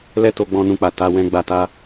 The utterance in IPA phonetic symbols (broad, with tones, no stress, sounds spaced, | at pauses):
l ɛ˧ t o˧ ɡ͡b ɔ̃˧ n ũ˧ k͡p a˨ t a˧ w ɛ̃˧ ɡ͡b a˧ t a˦